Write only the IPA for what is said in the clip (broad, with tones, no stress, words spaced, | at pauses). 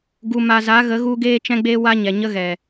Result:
ɡu˨ma˨za˨˦ɣə˨˦ ɣu˦ɡeː˦ t͡ʃɛ̃˦ɡ͡beː˦wa˦ɲɛ˨ ɲə˦ɣɛ˨